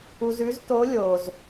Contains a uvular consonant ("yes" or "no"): no